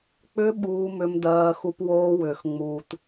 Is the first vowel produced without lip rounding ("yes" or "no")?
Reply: no